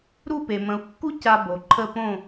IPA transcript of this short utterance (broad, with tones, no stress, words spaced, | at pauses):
ɾu˥˩pe˩mə̃˩˥u̯kːu˥ ca˧ bo˩ ǃʰə˥˩ põ˥˩